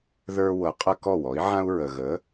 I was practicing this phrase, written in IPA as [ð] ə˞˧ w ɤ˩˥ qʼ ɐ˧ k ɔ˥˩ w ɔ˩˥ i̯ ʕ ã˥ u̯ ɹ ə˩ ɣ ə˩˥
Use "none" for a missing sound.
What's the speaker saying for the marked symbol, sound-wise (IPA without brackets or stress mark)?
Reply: ð